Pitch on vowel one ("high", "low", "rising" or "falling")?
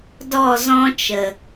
falling